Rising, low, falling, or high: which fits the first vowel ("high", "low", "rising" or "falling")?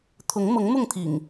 rising